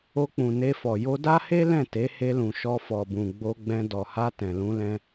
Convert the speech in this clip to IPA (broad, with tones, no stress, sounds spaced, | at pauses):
o˧ k͡p ũ˨ n e˧ f ɔ˨ j o˧ d a˦ h e˦ l ɛ̃˦˨ t e˨˦ h e˧ l ũ˨ ʃ ɔ˧ f ɔ˨ b ũ˨ ɡ͡b o˧ ɡ͡b ɛ̃˧ d ɔ˨ h a˧ t ɛ̃˨ l ũ˧ l ɛ̃˧